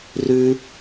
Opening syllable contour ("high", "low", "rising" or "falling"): high